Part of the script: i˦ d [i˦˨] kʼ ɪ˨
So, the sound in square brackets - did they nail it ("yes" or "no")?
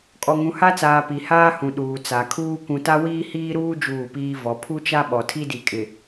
no